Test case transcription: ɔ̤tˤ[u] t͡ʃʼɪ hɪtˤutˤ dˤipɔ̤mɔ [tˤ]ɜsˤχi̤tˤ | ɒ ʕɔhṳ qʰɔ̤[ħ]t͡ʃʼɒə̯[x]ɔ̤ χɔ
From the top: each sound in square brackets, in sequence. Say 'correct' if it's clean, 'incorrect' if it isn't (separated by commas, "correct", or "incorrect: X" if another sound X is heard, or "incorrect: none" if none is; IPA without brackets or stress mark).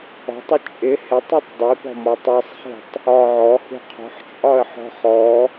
incorrect: ʊ, correct, correct, incorrect: ħ